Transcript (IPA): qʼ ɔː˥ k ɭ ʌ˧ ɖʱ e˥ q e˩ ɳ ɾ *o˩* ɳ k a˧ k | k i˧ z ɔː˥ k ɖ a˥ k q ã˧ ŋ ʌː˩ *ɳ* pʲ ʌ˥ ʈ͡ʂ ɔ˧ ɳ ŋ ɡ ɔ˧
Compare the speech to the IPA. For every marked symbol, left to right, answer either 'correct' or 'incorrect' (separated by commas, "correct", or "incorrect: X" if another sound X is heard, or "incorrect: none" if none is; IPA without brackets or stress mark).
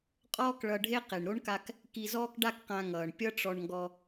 incorrect: o˥, correct